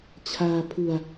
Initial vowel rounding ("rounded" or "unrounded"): unrounded